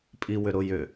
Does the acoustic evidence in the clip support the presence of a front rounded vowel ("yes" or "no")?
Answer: yes